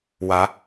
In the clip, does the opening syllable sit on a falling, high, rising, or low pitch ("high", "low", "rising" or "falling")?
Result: rising